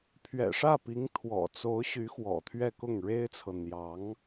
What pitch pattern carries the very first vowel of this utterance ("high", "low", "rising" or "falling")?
low